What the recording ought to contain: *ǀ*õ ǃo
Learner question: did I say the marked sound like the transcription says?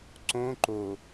yes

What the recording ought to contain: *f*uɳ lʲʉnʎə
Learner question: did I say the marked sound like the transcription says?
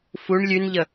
yes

